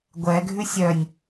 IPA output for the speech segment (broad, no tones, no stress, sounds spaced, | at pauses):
ɡʷ ɛ ɡʱ ʉ sʲ œ nʲ